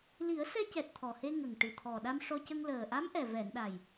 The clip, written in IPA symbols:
li˨˩˦ə̯sɛ˧cɛ˨˩t̚ t̪ʰɔ˨˩he˧ ŋə˨˩ŋ ʈɨ˨˩t̪ʰɔ˨˩ɗa˧m ʂɔ˧cə˧ŋ ləː˨˩ʔa˧˥mʔɛ˨˩ vɛ˨˩˨nɗa˨˩j

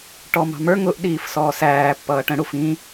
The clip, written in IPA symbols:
ʈɔmɑ̤mə˞ ŋʊʔ ɗiːfsɔːsæː pːʌːʈə̃ ɽufĩ

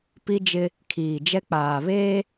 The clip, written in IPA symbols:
pi˦d͡ʒɪ˦ | kʰiː˨d͡ʒɛ˦k͡paː˨ βeː˦

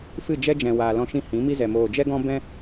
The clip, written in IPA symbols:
fɨ˦˨ d͡ʒɛ˦d͡ʒɛ̃˨ waː˨lɔ̃˧ʃĩ˧ hĩ˨˦mi˦zɛ˨ moː˨d͡ʒɛ˦ɡɔ̃˦ bɛ̃˦

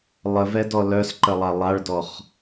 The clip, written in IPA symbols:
lˠəvɛdɔ lœsǃəlˠa lˠaɭdɔχ

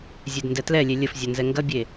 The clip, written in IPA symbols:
zʲedndɛtlɛlʲe lʲəfzʲɐ nzɛŋɡɐbʲe

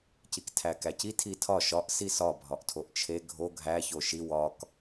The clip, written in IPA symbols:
ciktʰækæci tʰitʰɒ ʃɒʔ sisɒ bʱɒʔtʰoʔt͡ʃʰe ɡʱo ɡʱæ çoʃi wɒk

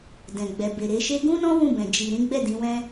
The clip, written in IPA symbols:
dɛ̃˨ɡ͡bɛ˨ be˨ɾe˧ʃe˦ ɡũ˦nɔ̃˦ wũ˦˨bɛ̃˨ d͡ʒi˨ɾĩ˨˦ɡ͡bɛ˦˨ dĩ˨˦wɛ̃˦

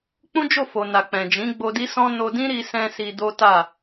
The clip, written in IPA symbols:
k͡pũ˦d͡ʒo˦˨fo˨ na˨k͡pɛ̃˨ d͡ʒĩ˨˦ɡ͡bo˧ di˦sɔ̃˦ no˧dĩ˦ ɾi˦sɛ̃˦ si˧do˦ta˦˨

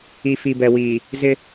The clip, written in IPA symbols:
i˨ fi˨bɛ˨wiː˨ | zɪ˦

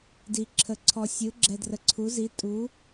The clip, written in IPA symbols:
di˨ ǁʰə˨ǀʰɔ˨sʲɯ˨˦ ɡ͡ǁɛ˨drə˨ǀʰu˨˦zi˨˦ tʼu˨˦

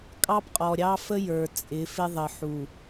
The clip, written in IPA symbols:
kʼɑ˦pqʼɔ˨ɾʲɑ˦fə˦ jə˞˨ t͡sʼɪ˨˦fɪ˦ðˤə˨ ħu˨

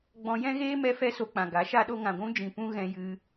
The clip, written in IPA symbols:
ɡ͡bɔ̃˧jɛ̃˦ɣeː˦ mɛ˦ fɛ˦so˧k͡pã˨ ɡa˨˦ʃa˦ɗo˦ ŋã˨ɡʷũ˦d͡ʒĩ˨ pũ˦ɣɛ̃˧jɨ˧

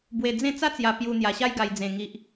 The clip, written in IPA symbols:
bwe˧d͡zẽ˥˧ t͡sa˦t͡sja˧ pju˧ n̪ja˧ɕa˦jɡa˧jd͡zẽ˧ ŋi˦ʔ

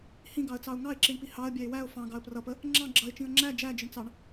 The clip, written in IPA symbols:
hĩɡɑə̯t͡sɑʊ̯ ŋɑɪ̯ǁiɳpi hɑə̯bʲæɪ̯ wæʊ̯ fɑ̃ɡɑə̯ prʌpə | ŋ͡ǁɑ̃ ɡ͡ǁʌɪ̯t͡ʃĩə̯ ŋ͡ǁæ d͡ʒæd͡ʒɪɳt͡sɑɳ

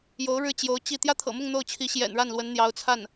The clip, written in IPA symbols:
jo˧˥ʊ̯ɻɻ̩˥˩t͡ɕjo˧˥ʊ̯ t͡ɕi˥˩ t̪jä˥t̪ʰɤ̰˨˩mʊ˥˧ŋ n̪o˥˩ʊ̯t͡ɕʰi˧˥ɕjɛ̰˨˩nɻa˥˩n lwə˧˥n n̪jɑ˧˥ʊ̯t͡sʰa˥˩n

